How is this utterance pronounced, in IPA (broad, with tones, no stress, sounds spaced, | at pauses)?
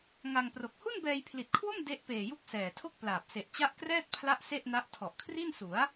ŋ a˧ ŋ p r o˨˩ k̚ h u˥˩ n b ɛː˧ j pʰ l i˨˩ t̚ kʰ w o˥˩ m d e˦˥ ʔ p eː˨˩ j u˦˥ k̚ s ɛː˨˩ tʰ o˥˩ k̚ p l aː˨˩ p̚ s e˨˩ ʔ t͡ɕ a˦˥ ʔ k r ɛː˥˩ t̚ pʰ l a˦˥ ʔ s e˥˩ ʔ n a˦˥ ʔ tʰ ɔ˨˩ ʔ kʰ r i˥˩ n s u˩˦ a̯